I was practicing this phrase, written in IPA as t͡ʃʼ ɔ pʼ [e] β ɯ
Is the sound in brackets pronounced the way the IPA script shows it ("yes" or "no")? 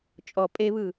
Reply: yes